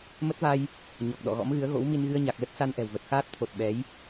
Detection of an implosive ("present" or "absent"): present